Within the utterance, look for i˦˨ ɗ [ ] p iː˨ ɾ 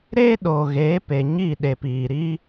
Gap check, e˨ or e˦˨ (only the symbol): e˨